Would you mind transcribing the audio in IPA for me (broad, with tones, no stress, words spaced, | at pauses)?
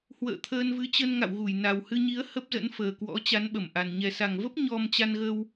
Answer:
hwə̰ː˧˨t̪ʰəː˧nvɨ˨˦t͡ɕə˧n ŋa̰˧˨wɣu˧˩j na˨˩whɨ˧ɲi˨˦ə̯ hə˦˥p̚zə̰˧˥nfəː˨˩kwɔ̰˧˥ t͡ɕa˨˦nɓə˧˩mʔa˨˩n ɲɛ˨˩sa˨˩ŋvə˦˥p̚ ɲɔ˧m t͡ɕa˧nɣə˧w